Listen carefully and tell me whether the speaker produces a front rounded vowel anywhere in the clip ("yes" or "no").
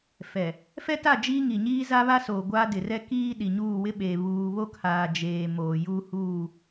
no